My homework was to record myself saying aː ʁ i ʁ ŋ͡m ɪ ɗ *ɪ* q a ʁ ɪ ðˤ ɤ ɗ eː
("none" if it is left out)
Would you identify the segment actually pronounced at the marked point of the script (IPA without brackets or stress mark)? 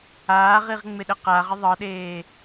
ə